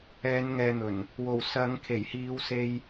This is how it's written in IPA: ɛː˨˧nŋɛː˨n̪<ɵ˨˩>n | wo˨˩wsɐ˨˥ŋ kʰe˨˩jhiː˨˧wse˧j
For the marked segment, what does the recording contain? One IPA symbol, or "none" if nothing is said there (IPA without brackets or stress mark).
ɵ˨˩